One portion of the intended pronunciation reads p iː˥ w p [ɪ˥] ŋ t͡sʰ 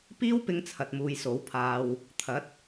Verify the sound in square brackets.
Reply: correct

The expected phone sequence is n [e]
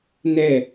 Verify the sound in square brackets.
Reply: incorrect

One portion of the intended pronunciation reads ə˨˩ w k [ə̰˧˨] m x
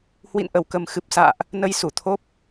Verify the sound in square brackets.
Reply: incorrect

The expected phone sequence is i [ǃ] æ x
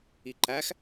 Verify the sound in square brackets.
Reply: correct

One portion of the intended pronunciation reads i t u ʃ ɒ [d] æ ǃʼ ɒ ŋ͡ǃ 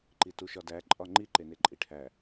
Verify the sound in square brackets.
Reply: correct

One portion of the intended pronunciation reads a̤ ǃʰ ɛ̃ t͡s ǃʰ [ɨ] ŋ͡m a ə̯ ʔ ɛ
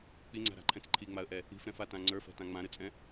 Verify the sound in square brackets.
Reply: incorrect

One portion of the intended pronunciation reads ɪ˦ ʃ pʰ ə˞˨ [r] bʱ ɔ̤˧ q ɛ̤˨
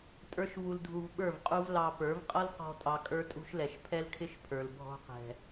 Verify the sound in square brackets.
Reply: incorrect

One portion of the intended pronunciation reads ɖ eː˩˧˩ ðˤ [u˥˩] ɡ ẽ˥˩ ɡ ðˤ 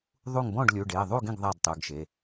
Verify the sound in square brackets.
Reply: correct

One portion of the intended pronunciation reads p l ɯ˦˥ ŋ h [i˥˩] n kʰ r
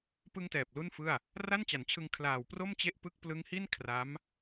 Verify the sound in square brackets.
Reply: correct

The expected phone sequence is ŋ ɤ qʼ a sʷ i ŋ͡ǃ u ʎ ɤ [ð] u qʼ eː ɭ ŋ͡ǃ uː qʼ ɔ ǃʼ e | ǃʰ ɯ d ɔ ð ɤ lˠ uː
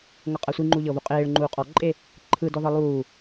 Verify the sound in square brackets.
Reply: incorrect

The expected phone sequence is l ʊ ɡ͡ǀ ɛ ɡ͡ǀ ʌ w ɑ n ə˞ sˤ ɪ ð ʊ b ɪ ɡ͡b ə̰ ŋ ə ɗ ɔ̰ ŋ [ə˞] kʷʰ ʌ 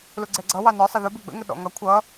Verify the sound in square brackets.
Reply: incorrect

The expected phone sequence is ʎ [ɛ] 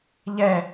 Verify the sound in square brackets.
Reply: correct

